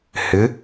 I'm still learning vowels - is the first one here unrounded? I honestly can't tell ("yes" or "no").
yes